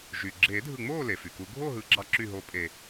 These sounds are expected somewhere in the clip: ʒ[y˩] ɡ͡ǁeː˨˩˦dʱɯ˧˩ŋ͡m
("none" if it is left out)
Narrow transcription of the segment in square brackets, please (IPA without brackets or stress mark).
y˩